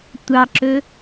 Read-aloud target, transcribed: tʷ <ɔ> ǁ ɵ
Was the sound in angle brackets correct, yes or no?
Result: no